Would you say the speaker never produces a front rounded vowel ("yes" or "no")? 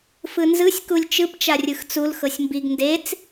yes